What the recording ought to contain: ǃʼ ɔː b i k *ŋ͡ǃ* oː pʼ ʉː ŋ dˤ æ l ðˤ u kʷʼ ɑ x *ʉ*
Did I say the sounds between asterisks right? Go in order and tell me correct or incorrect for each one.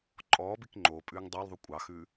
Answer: correct, correct

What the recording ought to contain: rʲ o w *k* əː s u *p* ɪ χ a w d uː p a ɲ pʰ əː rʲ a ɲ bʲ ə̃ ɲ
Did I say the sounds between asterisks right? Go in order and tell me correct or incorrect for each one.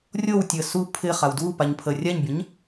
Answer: incorrect: tʲ, incorrect: pʰ

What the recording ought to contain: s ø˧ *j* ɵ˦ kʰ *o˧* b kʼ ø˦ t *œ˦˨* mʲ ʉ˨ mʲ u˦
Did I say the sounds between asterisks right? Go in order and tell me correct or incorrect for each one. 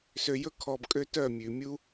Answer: correct, incorrect: ɔ˧, correct

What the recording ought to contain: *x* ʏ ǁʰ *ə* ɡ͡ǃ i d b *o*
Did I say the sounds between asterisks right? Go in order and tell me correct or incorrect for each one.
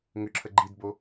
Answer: incorrect: ŋ, correct, correct

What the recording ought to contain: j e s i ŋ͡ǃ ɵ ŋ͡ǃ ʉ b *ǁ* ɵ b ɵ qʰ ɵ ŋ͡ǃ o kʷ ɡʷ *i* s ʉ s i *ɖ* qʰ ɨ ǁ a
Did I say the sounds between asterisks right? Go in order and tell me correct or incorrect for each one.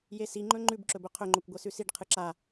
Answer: correct, incorrect: e, correct

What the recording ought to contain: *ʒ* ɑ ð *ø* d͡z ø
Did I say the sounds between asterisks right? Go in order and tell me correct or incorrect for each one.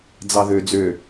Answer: incorrect: d͡z, correct

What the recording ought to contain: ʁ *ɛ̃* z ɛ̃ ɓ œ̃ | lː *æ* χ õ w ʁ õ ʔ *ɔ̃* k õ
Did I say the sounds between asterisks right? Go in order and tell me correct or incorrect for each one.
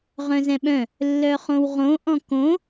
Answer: incorrect: œ̃, incorrect: œ, correct

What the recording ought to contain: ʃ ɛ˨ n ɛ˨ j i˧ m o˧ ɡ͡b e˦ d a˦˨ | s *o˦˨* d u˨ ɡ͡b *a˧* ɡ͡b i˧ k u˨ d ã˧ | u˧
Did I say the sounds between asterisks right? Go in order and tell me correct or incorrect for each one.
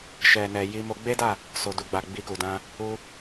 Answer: incorrect: o˨, incorrect: a˨

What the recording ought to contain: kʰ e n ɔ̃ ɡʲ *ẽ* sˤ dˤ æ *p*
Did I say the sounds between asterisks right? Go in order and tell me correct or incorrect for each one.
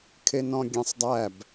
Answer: correct, incorrect: b

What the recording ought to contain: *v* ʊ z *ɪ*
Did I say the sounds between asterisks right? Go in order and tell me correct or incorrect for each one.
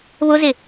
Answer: incorrect: β, correct

